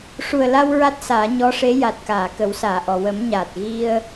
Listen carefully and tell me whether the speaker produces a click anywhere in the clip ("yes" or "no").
no